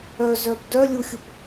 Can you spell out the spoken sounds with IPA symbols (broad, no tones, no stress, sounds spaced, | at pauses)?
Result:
œ z œ b d œ lʲ u xʲ u p